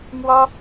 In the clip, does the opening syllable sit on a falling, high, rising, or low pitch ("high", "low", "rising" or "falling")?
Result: high